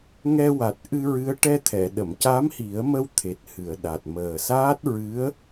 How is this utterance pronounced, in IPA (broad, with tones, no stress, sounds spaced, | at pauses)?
ŋ ɛ˧ w a˨˩ t̚ ʔ ɨ˧ ɹ ɨ˧˥ ə̯ ʈ ɛ˧ t̪ʰ ɛ˨˩˨ ɗ ə˨˩˨ m c a˧˥ m h i˨˩˦ ə̯ m ə˧ w t̪ʰ e˨˩ t̚ h ɨ˨˩˨ ə̯ ɗ a˨˩ t̚ m əː˨˩ s aː˦˥ t̚ ɹ ɨ˧˥ ə̯